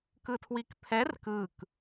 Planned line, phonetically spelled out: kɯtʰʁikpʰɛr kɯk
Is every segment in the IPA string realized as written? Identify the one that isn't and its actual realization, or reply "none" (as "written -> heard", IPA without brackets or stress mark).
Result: ʁ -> w